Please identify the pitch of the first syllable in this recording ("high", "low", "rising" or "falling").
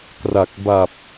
low